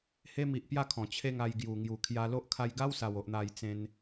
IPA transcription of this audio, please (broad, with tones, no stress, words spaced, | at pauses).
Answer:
he˦mi˨ʔpja˥˧ kʰɔ̃˨˩t͡ɕʰe˥˧ŋa˧j ɡju˨˩ŋju˨˩kʰja˧lo˦ʔ kʰa˧jɡa˦wsa˨˩wo˨ʔ n̪a˥˧jt͡sẽ˦n